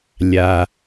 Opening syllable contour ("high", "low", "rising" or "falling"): low